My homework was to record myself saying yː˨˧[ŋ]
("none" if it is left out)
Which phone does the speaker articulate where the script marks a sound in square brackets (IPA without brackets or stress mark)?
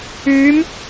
m